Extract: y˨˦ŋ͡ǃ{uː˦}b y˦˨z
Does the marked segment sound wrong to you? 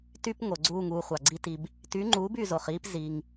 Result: yes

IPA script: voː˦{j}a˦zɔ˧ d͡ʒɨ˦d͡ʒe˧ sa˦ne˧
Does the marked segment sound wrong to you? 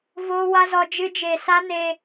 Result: yes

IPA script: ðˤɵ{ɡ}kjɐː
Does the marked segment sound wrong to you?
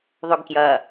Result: no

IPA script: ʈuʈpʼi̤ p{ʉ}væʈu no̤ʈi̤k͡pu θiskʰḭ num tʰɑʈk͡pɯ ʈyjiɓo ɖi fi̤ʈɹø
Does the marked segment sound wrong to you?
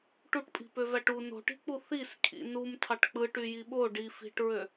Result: yes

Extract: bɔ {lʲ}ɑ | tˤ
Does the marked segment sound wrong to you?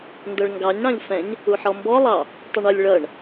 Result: yes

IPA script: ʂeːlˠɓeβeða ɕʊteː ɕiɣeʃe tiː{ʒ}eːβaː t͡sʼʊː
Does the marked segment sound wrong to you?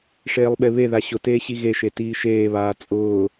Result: yes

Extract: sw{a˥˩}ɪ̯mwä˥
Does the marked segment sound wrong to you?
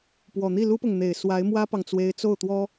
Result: yes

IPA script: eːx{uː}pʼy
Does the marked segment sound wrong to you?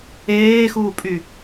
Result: no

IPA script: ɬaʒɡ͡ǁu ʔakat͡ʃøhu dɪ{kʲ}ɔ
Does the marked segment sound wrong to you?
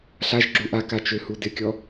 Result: no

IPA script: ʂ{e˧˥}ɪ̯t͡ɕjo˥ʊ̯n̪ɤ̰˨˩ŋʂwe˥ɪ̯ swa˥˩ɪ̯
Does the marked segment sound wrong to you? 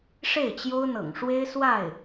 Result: yes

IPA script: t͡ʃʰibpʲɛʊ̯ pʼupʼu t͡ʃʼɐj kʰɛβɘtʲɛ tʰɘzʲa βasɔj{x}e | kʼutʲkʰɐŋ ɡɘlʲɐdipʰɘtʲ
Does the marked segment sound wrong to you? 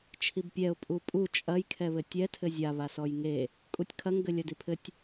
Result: yes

